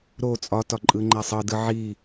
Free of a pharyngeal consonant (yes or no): no